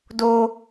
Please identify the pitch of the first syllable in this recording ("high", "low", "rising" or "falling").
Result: high